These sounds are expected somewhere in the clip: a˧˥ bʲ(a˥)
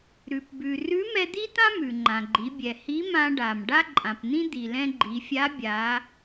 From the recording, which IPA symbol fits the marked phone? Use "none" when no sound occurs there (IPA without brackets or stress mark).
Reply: a˩˧